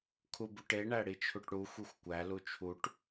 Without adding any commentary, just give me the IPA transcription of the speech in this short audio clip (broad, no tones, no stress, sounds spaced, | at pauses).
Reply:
kʰ u b u ʈ e ɳ æ ɽ i t͡ʃʰ u ʈ ɽ u xʷ i xʷ kʷ æ l u t͡ʃʰ u ʈ